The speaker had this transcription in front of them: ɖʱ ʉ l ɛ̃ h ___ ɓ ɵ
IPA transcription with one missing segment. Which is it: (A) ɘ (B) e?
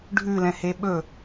B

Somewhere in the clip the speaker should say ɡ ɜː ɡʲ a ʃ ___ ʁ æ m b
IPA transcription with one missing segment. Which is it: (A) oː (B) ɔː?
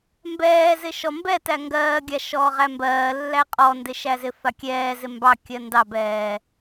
B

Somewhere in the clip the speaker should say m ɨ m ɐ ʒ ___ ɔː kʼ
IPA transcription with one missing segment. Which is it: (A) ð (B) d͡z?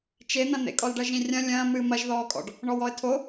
A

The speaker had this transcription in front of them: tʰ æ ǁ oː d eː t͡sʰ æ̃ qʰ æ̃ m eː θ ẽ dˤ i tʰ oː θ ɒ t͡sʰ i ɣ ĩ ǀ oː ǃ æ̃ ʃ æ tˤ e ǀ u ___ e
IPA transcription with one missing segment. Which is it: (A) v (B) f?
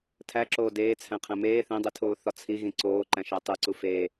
B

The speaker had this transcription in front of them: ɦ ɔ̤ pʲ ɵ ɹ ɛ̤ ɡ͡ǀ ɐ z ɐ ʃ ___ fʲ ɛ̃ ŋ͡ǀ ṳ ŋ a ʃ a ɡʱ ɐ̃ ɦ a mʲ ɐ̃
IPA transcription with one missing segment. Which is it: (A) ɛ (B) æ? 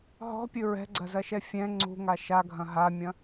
A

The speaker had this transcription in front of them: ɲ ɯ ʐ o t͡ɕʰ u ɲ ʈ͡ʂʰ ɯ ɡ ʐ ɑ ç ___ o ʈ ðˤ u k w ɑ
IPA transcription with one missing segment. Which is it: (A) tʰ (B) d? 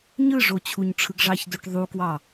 B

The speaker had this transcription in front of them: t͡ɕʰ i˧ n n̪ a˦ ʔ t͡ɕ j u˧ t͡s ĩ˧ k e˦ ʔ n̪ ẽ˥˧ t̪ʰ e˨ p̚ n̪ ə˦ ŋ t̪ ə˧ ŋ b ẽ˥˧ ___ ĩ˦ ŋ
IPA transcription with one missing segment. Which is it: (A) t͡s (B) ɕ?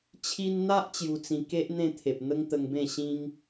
B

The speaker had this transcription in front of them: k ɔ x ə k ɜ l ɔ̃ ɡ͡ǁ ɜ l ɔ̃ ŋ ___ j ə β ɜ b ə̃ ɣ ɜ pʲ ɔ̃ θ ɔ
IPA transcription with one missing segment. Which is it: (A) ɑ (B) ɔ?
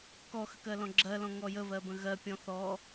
B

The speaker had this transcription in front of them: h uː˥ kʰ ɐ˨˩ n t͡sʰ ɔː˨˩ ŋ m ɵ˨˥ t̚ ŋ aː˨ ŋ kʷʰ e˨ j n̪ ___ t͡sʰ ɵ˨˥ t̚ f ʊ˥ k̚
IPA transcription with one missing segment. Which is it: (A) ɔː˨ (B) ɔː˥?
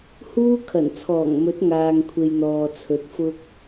A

